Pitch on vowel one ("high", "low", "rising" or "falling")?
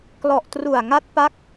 low